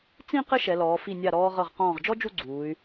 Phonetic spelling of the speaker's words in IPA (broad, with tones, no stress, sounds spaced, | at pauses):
t͡s ĩ˥˧ q ɘ˥ ʃ ɛ˩˧ l ɔː˩˧ f i˧˩ nʲ a˧˩ ɾ ɔː˧ ʁ ɤ˧˩ ʁ q ɔ̃ː˧˩ ʁ d͡ʒ ɔ˥ d͡ʒ u˥˧ ɡ͡ǀ uː˩˧ y̯